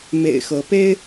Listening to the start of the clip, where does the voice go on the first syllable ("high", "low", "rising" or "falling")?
low